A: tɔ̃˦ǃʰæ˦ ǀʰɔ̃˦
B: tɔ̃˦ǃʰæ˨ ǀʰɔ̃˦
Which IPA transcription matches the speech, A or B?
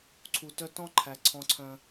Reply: B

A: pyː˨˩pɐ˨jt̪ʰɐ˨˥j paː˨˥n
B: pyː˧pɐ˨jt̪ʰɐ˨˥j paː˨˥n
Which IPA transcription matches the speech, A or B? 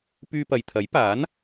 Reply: B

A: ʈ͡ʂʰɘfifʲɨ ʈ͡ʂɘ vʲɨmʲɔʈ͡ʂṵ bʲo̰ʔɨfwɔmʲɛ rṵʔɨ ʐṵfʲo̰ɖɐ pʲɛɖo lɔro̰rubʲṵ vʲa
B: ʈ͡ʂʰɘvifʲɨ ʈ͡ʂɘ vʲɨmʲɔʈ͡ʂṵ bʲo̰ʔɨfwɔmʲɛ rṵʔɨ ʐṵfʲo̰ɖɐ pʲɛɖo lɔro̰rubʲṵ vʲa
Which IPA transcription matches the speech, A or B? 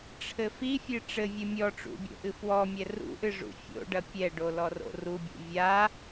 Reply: A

